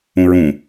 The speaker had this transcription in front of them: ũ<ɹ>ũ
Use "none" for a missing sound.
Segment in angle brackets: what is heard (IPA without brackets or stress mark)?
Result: ɹ